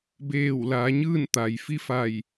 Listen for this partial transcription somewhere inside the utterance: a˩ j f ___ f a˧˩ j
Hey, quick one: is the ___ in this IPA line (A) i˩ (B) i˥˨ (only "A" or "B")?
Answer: B